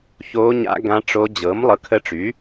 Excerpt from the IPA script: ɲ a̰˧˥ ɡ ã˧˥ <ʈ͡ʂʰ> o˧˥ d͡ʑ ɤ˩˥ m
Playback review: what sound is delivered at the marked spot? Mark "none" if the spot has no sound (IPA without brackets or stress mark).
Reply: ʈ͡ʂ